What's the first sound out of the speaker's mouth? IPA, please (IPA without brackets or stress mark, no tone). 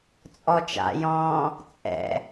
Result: t͡sʼ